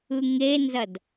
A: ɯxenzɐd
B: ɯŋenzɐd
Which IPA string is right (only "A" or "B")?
B